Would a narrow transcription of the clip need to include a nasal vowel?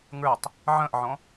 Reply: yes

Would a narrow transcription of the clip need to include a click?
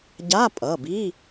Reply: no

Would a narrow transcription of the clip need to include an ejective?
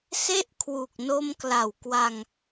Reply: no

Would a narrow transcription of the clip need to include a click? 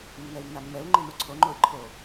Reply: yes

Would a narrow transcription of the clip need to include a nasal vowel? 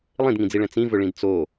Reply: yes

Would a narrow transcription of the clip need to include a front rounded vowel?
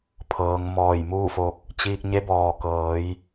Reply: no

